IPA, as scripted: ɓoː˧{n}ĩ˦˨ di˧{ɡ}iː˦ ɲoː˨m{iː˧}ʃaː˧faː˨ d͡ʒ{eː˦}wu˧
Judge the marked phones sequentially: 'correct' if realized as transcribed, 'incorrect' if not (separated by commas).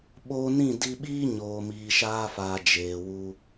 correct, incorrect, incorrect, incorrect